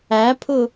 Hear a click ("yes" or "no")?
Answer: no